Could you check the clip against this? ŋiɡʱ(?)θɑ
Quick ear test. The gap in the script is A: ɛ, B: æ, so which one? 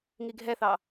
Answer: A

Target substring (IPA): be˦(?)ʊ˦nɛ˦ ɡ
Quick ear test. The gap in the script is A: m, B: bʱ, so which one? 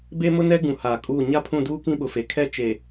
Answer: A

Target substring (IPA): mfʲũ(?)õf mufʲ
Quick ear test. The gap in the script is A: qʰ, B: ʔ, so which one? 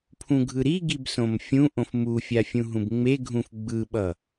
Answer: B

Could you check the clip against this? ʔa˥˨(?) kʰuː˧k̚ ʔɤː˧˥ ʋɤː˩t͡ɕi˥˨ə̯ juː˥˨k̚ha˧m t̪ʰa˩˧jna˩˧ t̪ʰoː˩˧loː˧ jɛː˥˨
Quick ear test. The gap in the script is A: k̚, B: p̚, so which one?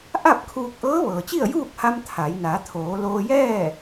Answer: B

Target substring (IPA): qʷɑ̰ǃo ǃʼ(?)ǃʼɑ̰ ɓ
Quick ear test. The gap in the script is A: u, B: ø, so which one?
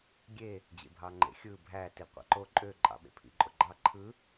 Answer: B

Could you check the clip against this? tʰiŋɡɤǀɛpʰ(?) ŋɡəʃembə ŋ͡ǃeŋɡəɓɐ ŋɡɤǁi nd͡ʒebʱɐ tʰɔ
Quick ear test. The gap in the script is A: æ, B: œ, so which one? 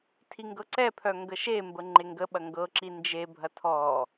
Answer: B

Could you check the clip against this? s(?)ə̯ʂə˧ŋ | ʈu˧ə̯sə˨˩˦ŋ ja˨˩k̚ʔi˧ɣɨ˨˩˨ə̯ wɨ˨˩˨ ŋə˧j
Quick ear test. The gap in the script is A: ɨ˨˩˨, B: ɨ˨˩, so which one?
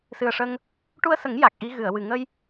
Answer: B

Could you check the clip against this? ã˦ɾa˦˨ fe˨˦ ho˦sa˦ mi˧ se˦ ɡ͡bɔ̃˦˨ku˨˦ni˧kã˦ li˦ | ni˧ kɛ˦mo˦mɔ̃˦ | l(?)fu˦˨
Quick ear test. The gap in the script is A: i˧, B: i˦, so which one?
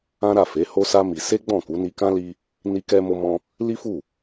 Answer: B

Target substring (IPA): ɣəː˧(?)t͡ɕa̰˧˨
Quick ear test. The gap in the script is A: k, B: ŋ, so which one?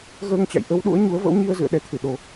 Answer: B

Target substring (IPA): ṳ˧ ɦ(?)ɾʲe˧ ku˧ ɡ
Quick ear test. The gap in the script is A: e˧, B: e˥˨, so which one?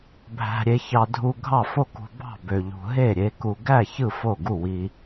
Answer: B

